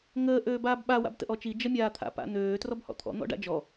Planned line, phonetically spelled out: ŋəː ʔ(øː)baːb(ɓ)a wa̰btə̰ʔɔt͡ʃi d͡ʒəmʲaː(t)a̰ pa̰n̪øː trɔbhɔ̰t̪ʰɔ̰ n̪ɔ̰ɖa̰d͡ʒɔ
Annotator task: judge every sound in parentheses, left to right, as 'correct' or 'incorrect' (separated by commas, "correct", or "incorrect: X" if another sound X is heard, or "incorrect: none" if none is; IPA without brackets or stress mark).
correct, correct, incorrect: t̪ʰ